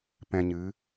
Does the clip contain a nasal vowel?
yes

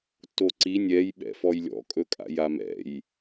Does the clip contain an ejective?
yes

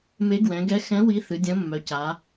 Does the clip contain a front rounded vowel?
yes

